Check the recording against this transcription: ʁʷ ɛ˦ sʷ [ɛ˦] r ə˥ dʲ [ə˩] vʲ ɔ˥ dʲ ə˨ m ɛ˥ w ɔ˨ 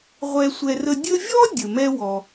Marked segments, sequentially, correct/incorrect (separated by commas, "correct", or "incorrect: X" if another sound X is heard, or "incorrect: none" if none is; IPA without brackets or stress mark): correct, incorrect: ə˦